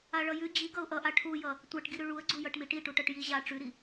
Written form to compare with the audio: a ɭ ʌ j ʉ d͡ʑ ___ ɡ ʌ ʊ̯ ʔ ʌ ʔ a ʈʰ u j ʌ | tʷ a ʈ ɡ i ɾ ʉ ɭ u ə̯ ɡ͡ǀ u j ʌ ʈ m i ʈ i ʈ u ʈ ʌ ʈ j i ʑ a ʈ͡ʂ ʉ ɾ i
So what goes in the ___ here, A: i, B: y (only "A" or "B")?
A